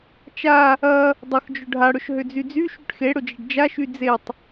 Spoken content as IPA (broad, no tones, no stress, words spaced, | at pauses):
t͡ʃa | ɐ | dˤʊxd͡ʒʊ ɖʱaɽʊʃ ɦʏd͡zyd͡zy ʃyʈxeɽʊd͡ʒɐɖ d͡ʒaʃy d͡zetˤ